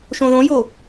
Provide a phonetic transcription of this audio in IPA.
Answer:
ʃõðõjo

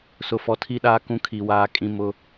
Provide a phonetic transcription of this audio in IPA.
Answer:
sʊ˨fɔ˨tʰi˦ɗaː˦ kũ˦kʰi˨waː˦ kʼĩ˦mʊ˦

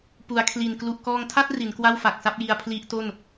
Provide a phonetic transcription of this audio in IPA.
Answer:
pu˩˦a̯kʰli˨˩n klu˨˩ʔkɔː˧ŋtʰa˥˩t̚ ri˩˦nkwa˥˩wfa˨˩k̚sa˥˩p̚ ji˧a̯pʰli˦˥ʔ to˥˩n

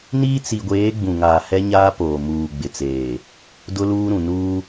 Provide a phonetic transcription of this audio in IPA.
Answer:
niː˦t͡si˨ɡʷeː˨˦ ɡ͡bũ˨ŋaː˨hɛ˦ ɲaː˦poː˨ muː˨ ɡ͡bɪ˨t͡seː˨ | dʊ˦luː˦ɾũ˨ nuː˦

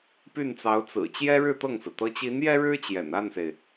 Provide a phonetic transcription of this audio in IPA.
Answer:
py˥˩nt͡sɑ˧˥ʊ̯t͡sɹ̩˨˩ t͡ɕjɛ˥ɻɻ̩˥˧ t̪ɤ˥˩ŋsɹ̩˩ t̪ɤ˧˥t͡ɕi˧˥n jɛ˥ɻɻ̩˥ t͡ɕjɛ̰˨˩n a˥˩nse˩ɪ̯

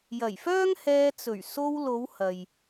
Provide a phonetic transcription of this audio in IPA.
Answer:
jɐ˨˩jfœː˥ŋ hɛː˧t͡sɵ˨˩ɥ so˧wlo˨˧w hɐ˨j

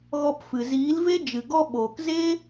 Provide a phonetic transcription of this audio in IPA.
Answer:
ɣɔ˧pfɨ˨ ziː˨˦lve˦ d͡ʒɨ˨ ɡɔ˦ ɓoː˨k ze˦

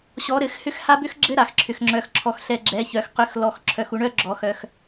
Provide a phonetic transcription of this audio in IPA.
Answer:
ɕɔ˨˦ɾɘ˨˦xhʏ˦˥x ha˦˥bʏ˦˥xɡ͡ǁɘ˦˥ ɾa˨xǁʰʏ˨xŋ͡ǁœ˨x ǁʰɔ˨xɬɛ˨ ɡ͡ǁɛ˨˦çœ˨x qʏ˨˦xlɔ˨x ǁʰœ˨xu˨˦ɳœ˦˥ ɡ͡ǁɔ˨˦xœ˨x

